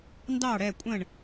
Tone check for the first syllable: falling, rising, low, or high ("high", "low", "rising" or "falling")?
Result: falling